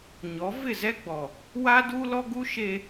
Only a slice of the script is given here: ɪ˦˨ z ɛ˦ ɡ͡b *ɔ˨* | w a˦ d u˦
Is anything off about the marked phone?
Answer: no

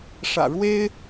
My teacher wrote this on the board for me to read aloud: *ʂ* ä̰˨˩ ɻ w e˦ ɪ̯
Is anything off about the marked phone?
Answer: no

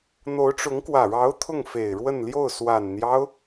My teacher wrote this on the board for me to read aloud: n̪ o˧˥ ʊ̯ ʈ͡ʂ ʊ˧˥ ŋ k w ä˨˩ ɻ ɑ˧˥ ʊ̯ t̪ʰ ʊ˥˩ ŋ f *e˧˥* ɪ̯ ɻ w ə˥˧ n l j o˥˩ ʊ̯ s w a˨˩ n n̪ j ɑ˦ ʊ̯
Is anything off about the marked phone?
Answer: yes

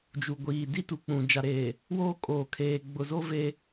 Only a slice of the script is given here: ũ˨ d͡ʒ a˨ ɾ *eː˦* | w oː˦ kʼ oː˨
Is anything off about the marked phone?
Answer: yes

